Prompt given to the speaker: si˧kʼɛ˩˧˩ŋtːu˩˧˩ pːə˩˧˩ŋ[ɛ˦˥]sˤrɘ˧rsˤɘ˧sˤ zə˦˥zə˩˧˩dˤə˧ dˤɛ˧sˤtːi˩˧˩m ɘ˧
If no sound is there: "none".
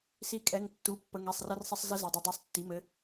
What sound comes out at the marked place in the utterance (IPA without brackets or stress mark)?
ɛ˩˧˩